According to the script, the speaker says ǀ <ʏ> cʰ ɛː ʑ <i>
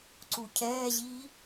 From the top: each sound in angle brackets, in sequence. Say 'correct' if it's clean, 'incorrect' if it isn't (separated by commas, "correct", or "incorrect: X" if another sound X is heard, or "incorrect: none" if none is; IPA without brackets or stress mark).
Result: incorrect: u, correct